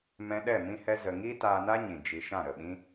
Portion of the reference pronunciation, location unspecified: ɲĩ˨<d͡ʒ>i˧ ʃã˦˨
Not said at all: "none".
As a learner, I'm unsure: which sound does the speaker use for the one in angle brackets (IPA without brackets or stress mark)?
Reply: d͡ʒ